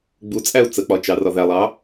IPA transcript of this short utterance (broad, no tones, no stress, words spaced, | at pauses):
ɡ͡but͡sʼæu̯ t͡sək͡pɒt͡ʃɑ rɒðælˠɑ